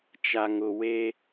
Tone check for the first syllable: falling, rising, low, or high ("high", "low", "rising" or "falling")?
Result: low